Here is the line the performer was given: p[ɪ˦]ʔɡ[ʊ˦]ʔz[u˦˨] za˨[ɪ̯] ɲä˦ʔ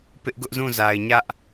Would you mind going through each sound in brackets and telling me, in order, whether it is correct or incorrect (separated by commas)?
correct, correct, incorrect, correct